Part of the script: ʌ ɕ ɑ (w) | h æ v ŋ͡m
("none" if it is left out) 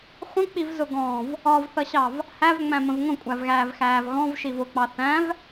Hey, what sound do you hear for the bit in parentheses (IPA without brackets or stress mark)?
v